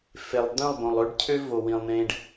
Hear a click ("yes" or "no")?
no